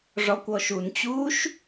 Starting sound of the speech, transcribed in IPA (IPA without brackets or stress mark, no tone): ʐ